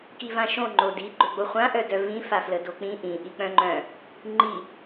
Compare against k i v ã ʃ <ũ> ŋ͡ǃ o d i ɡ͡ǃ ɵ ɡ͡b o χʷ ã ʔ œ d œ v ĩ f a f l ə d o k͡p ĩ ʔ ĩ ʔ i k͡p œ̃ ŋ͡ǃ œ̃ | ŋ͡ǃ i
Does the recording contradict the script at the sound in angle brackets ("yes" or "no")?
yes